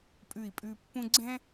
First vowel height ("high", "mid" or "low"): high